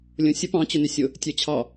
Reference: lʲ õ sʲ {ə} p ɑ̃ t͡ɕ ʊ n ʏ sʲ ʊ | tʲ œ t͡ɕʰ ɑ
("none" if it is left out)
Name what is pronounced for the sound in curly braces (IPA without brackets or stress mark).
ə